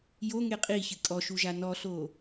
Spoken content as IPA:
j o ŋ e qʼ i ç ɨ kʼ ɔ ʃ u ʒ a n ɔ ɬ o

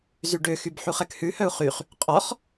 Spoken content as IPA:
z y ɖ ø x y b ħ u χ ɛ k h ʉ h œ u̯ χ y χ | qʼ ɔ χ

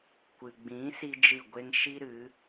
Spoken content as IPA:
kʷ ɨ˨ ɡ͡b ĩ˨˦ s i˦ d͡ʒ ɨ˦˨ ɡʷ e˦ ŋ ʃ i˦ ɾ ɨ˨˦

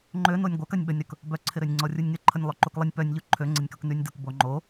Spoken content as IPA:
ŋ͡ǃ ø n o nʲ ɡʷ œ k ɐ nʲ ɓ ə nʲ ɾ ʊ k | b œ ǀʰ ɪ ɾ ø nʲ ŋ͡ǀ ɔ rʲ u nʲ ŋ ɪ ǃʰ ə nʲ lˠ y ǃ u k lˠ ə nʲ p œ nʲ ʎ u ǃʰ ø ŋ͡ǀ ɪ nʲ k u k n y nʲ d ʊ k b o ŋ͡ǃ o

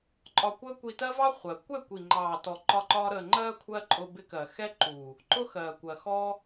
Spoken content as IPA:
ǃʼ ɒ˧ kʷ əː˦ kʷ i˧ t ɜ˦ v ɑ˦ χʷ ɜ˨ kʷ ɛ˦˨ kʷ i˨ ŋ͡ǃ ɑː˨ t ɔ˨ ǃ ɒ˧ ǃ ɒː˧ ɾ əː˨ ŋ͡ǃ ɜː˦ kʷʰ ɜ˦ ǃʼ ʊ˧ b ɪ˧ k ɜ˨ x ɛ˦ ǃ u˨ | ǃ ʊ˦ x ɜː˨ kʷ ɜ˨ x ɔ˦

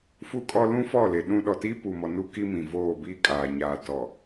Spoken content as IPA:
f u˦ kʼ ɔ˦ l ũ˦ f ɔ˦˨ l e˨ ɗ ũ˦ ɗ ɔ˨ t iː˦ p u˨ m ɔ˨ n u˦ k i˦ m ĩ˨ v oː˦˨ b iː˦ kʼ aː˨ ɲ aː˨ t ɔ˨

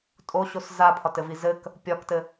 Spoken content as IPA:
tʼ o ɕ o s z a pʰ ɒ t ɘ v i z ɘ k | pʲ ɒ k t ɘ

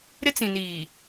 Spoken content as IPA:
ɾ ɪ˦ t͡s ĩ˨ n iː˨

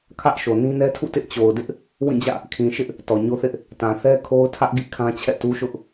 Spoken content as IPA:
kʰ ä˦ ʔ ʃ o˨ n ĩ˦ n ɛ˦ tʰ ṵ˦˨ t ɪ˦ ʔ t͡ɕ o˨ ʊ̯ d ɪ˦ ʔ | w ĩ˦˨ d͡ʑ ä̰˦˨ | kʰ ĩ˨ ʃ ɪ˦ ʔ | t ɔ˨ ɲ o˦ θ ɪ˦ ʔ | t ã˨ θ ɛ˦ kʰ o˦ ʊ̯ tʰ ä˦ ʔ ɡ ḭ˦˨ kʰ ã˦ t͡ɕʰ ɛ̰˦˨ t u˦ ʃ ʊ˦ ʔ

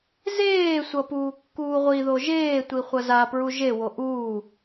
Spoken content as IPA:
z eː sʷ ʌ p uː kː uː ʁʷ i ð o ʒ eː tʷ i χʷ ʌ z a p ɹ u ʒ e w o ʔ uː

